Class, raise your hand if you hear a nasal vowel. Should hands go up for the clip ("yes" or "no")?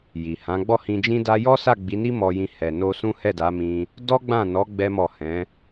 yes